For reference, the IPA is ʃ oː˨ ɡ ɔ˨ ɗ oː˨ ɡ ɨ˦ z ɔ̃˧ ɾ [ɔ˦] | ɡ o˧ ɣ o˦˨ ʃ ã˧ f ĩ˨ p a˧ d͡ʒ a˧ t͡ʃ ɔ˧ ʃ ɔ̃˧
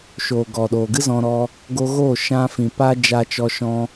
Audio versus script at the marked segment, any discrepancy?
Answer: yes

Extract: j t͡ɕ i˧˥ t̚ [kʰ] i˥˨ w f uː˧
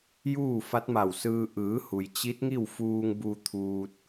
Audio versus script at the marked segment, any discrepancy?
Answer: yes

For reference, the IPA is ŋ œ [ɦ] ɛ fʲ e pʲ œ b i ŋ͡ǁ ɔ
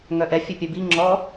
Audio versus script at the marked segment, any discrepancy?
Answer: yes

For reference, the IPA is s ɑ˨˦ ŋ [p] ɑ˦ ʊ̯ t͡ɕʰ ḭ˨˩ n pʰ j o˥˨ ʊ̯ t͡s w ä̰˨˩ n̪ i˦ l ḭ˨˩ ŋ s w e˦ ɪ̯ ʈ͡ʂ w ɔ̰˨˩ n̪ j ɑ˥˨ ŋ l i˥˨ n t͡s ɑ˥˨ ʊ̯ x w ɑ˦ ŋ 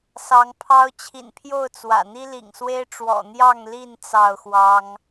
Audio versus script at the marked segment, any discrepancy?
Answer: yes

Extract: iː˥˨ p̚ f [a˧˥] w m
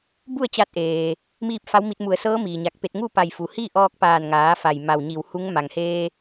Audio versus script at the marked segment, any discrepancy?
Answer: no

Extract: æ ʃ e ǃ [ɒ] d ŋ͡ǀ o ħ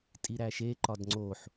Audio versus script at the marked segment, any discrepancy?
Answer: no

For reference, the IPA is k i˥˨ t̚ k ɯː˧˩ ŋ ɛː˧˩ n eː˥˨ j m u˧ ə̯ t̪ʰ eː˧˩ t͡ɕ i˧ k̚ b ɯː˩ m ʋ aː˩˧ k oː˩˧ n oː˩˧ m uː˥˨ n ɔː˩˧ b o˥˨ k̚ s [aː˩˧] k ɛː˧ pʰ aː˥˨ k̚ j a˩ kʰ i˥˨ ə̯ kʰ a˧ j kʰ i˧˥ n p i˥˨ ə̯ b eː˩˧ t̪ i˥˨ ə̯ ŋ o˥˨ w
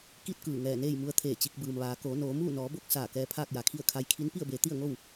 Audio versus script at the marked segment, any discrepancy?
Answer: yes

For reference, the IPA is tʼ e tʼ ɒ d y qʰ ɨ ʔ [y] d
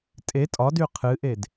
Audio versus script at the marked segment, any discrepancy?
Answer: yes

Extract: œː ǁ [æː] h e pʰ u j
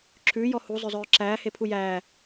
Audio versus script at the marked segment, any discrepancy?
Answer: no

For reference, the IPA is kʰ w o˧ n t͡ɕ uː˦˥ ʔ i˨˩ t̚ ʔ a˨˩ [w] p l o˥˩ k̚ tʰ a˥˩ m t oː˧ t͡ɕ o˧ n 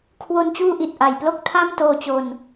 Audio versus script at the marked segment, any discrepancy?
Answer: yes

